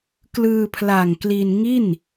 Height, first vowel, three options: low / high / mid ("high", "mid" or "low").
high